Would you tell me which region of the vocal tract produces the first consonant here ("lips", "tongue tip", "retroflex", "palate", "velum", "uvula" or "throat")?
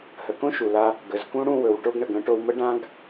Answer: throat